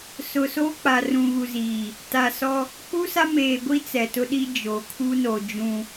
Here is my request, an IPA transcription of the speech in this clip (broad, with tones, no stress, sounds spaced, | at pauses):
s ʊ˨ s o˦ k͡p a˨ r ũ˨ ɣ u˨ z iː˨ | t a˨ s ɔ˦ | k͡p u˦ s a˦ m eː˨ ɡʷ i˦ t͡s ɛ˨ t ʊ˦ ɗ i˦ d͡ʒ o˨ kʰ u˦ n o˨ d͡ʒ ũ˦